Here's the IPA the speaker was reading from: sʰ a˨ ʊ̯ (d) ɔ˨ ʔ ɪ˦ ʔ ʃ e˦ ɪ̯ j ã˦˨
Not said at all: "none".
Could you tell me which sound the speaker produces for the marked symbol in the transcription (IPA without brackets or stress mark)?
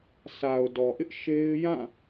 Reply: d